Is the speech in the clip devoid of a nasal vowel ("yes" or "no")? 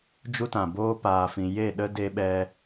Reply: no